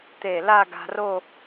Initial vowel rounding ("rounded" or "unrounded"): unrounded